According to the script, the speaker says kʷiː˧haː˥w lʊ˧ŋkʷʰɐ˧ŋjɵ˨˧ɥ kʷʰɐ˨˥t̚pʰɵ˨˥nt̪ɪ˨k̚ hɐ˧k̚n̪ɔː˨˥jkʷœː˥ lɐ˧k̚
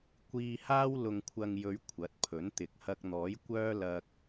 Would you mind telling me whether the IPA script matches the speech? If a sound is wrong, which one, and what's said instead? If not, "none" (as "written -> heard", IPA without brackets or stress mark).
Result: none